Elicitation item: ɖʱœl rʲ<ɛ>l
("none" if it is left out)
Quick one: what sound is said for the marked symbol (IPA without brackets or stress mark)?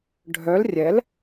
ɛ